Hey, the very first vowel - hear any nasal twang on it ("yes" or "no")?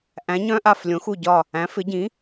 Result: yes